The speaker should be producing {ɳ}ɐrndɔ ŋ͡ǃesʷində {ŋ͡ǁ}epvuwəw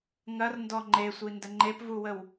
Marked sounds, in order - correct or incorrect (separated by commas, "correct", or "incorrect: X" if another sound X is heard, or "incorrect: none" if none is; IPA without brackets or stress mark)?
incorrect: ŋ, incorrect: ŋ͡ǃ